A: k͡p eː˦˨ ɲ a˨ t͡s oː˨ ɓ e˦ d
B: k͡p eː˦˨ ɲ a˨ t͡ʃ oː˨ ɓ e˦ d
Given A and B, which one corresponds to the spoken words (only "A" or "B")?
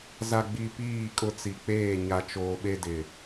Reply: B